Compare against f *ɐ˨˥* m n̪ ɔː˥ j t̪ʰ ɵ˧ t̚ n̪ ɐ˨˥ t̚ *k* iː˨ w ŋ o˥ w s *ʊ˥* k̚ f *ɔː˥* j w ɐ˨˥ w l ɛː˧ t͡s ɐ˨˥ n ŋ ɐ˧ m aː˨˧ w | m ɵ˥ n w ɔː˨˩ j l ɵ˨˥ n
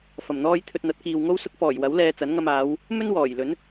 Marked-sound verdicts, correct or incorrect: incorrect: ɐ˨˩, correct, correct, incorrect: ɔː˨˩

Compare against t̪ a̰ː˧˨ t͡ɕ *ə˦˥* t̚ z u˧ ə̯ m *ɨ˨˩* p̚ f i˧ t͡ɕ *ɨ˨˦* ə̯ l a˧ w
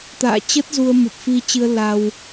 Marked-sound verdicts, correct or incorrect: correct, correct, incorrect: ɨ˧

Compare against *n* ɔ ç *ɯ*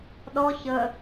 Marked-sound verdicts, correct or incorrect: incorrect: ɗ, incorrect: ə

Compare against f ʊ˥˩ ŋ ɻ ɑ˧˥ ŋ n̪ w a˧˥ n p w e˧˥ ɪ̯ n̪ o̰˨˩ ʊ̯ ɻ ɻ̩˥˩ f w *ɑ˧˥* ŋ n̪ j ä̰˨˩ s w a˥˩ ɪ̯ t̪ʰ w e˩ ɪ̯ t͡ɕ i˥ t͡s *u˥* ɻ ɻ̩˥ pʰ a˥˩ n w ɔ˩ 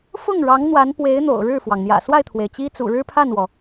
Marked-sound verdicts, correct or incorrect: incorrect: ɑ˩, incorrect: ṵ˨˩

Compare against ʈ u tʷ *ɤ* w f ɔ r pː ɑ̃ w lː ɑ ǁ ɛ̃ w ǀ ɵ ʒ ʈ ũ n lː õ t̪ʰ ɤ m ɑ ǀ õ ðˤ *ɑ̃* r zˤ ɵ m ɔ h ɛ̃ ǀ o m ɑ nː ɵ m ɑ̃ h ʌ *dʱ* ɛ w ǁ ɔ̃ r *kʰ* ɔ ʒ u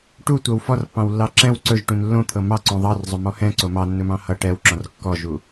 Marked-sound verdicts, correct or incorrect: correct, incorrect: ɑ, incorrect: ʈ, incorrect: kː

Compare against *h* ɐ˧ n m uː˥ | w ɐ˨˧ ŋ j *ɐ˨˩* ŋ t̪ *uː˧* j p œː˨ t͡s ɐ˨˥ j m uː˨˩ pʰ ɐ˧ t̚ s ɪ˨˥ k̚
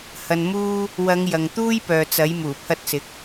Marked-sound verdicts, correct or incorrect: correct, incorrect: ɐ˨, incorrect: uː˥

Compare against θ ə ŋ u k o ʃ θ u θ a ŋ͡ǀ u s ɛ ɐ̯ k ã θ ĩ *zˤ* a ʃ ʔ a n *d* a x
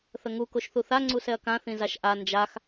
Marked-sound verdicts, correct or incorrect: incorrect: z, incorrect: d͡ʒ

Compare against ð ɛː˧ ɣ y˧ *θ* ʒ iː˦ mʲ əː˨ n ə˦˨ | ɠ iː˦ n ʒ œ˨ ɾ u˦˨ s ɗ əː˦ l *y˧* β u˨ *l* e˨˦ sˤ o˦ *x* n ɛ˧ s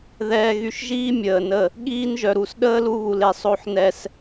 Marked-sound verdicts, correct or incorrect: incorrect: ʃ, incorrect: u˧, correct, incorrect: ħ

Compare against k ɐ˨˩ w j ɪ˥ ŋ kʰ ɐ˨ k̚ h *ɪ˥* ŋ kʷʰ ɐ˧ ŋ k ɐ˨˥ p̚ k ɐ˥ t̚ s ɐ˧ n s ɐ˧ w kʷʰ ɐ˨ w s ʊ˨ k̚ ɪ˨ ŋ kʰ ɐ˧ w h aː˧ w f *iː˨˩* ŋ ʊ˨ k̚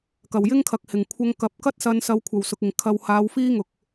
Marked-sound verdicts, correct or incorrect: incorrect: ɪ˨˩, incorrect: iː˥

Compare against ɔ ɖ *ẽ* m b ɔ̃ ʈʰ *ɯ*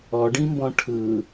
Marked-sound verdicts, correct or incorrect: incorrect: ĩ, correct

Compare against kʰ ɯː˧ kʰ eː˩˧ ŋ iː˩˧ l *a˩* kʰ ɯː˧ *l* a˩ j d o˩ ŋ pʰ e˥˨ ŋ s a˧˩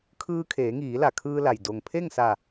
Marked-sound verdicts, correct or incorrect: correct, correct

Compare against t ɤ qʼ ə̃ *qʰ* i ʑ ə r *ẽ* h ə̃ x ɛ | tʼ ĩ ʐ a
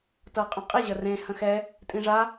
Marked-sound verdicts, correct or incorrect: incorrect: qʼ, correct

